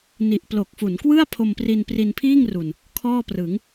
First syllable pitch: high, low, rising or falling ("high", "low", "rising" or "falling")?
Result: low